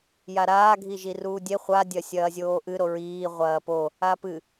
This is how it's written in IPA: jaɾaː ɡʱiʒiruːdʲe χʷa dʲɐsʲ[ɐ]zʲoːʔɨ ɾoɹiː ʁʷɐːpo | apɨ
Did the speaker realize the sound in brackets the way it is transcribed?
no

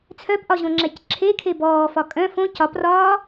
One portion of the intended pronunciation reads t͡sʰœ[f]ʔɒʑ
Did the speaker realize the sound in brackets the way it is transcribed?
no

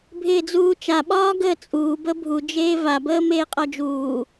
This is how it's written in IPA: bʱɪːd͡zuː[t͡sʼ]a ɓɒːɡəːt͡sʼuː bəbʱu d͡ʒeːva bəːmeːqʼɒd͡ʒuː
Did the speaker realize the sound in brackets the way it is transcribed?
no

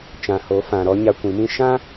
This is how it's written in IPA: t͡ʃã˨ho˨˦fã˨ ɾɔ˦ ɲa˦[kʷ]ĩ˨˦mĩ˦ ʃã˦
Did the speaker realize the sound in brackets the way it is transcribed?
yes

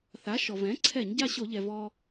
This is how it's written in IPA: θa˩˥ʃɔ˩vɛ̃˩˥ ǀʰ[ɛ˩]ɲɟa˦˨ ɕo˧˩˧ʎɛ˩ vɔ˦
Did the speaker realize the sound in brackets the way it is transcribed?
no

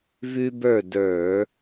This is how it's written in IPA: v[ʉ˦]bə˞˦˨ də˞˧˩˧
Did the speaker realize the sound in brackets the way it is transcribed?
yes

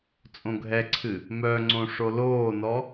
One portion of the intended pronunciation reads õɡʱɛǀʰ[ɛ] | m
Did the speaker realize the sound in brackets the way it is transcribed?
no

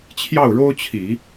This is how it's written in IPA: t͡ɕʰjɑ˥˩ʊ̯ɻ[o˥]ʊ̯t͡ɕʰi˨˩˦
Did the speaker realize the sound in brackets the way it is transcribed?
yes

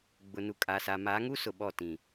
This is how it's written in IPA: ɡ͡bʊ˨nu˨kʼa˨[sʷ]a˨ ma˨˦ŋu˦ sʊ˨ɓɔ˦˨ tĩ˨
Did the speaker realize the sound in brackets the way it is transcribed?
no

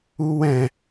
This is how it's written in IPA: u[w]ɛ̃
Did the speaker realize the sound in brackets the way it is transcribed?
yes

